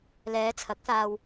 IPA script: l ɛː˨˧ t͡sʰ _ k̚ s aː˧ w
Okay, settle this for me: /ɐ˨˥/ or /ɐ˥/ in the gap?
ɐ˨˥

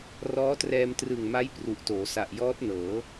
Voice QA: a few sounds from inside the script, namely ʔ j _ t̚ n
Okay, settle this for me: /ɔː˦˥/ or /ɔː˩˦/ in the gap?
ɔː˦˥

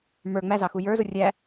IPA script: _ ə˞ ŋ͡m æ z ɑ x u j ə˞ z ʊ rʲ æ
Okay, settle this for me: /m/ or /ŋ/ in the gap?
m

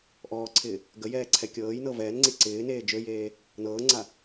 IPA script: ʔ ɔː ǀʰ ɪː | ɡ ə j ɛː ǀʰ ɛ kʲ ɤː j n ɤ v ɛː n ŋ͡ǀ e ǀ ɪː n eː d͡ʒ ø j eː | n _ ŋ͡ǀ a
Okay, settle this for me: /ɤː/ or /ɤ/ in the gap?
ɤː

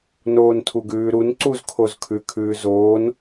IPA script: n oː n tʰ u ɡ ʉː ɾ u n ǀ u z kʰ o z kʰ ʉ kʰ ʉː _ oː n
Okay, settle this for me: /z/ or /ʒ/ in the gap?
z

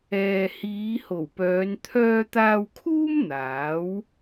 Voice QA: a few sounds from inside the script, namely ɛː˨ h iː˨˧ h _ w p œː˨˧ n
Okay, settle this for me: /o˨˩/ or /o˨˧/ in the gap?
o˨˩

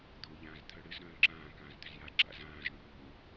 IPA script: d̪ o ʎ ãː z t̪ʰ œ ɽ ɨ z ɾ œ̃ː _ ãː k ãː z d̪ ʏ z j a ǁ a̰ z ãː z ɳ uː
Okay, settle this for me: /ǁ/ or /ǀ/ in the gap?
ǁ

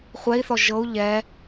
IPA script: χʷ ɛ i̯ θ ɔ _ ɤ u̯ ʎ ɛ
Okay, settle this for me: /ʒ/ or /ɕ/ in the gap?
ʒ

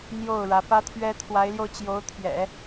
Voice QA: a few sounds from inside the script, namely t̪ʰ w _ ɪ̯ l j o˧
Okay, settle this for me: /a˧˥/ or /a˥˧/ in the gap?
a˧˥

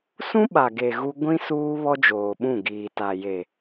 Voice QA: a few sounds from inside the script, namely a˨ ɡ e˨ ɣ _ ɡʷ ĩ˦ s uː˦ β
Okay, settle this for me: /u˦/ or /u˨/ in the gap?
u˦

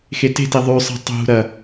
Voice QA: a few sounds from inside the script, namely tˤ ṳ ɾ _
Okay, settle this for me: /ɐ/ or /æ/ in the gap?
ɐ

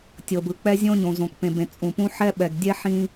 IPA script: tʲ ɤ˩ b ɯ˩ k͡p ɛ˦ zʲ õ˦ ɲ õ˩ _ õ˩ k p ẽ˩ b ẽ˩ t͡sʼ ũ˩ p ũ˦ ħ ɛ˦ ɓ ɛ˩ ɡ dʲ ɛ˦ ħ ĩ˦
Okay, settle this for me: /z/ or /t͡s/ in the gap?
z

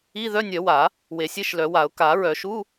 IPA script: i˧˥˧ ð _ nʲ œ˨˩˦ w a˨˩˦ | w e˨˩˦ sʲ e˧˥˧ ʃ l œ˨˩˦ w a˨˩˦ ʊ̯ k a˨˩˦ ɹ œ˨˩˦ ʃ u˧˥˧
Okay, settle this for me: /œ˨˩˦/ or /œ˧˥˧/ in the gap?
œ˧˥˧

